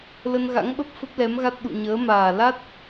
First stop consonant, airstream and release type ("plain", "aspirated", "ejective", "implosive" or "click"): implosive